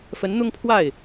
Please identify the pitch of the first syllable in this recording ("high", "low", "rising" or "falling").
rising